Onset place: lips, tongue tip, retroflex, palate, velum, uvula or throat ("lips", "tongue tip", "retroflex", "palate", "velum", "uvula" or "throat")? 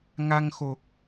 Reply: velum